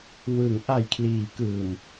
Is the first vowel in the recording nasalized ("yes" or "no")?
no